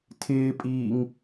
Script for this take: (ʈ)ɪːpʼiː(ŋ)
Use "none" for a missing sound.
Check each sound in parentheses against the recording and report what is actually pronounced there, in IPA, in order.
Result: tʰ, ŋ

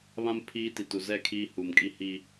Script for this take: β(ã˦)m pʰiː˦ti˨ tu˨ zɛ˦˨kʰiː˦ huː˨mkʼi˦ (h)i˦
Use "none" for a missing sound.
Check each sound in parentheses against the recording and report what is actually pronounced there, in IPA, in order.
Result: ã˦, h

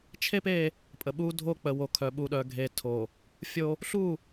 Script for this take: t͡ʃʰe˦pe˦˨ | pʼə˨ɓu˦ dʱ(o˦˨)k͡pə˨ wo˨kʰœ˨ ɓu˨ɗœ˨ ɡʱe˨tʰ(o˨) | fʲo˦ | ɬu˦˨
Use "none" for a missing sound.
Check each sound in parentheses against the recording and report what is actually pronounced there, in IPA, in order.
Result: o˦˨, o˨

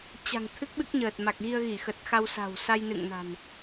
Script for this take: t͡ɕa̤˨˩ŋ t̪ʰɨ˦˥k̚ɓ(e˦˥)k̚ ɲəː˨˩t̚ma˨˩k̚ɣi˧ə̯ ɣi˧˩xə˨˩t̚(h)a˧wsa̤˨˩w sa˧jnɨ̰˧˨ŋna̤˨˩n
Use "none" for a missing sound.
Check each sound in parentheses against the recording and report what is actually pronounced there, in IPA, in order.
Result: ɨ˦˥, x

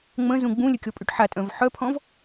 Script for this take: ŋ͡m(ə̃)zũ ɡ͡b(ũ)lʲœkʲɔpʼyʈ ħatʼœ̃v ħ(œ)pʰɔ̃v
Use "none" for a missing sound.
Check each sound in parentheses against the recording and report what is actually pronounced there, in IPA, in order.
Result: ə̃, ũ, œ

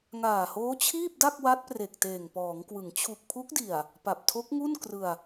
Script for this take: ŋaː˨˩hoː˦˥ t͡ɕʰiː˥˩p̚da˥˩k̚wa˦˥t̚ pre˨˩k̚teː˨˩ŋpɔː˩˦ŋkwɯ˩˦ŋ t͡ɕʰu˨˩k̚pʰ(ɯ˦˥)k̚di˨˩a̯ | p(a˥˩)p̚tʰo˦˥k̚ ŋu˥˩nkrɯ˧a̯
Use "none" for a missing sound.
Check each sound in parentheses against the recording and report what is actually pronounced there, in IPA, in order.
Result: u˦˥, a˨˩

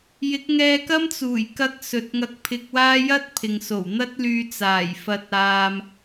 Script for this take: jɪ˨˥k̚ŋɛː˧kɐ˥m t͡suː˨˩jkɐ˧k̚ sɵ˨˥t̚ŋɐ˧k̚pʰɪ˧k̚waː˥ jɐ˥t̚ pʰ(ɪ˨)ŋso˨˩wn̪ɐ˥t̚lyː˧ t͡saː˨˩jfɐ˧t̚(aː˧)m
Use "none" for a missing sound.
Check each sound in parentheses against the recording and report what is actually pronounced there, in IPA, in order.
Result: ɪ˨, aː˧

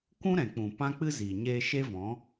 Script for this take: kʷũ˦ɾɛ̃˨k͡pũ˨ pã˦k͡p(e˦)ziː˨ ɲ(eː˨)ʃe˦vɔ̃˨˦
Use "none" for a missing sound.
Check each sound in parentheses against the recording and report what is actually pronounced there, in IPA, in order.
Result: ɨ˦, eː˧

